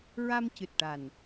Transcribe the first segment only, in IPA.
ɹ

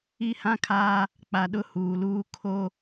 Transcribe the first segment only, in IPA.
i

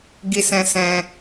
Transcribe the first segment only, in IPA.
ɡ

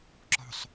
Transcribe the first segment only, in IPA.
ǁ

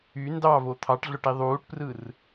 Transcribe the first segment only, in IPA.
y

